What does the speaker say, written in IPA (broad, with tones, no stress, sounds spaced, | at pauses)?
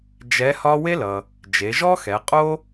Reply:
d͡ʒ ɛ˧˥ h ɒ˥ w e˥ l ʌ˩ | d͡ʒ e˩˧ ʒ ɔ˥ x ɛ˩˧ qʼ o˥